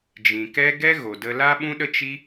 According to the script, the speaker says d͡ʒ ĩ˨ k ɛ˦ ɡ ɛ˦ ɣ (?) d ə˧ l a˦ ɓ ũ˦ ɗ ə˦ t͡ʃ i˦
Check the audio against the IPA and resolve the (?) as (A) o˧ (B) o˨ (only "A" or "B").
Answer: B